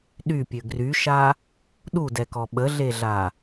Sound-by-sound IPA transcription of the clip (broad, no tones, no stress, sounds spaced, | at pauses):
ɗ y pʲ ø ɡ r y ʃ a | ɗ u d ɛ k ɔ ɓ ə ɮ e ɮ a